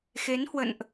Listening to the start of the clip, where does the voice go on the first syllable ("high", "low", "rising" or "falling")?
rising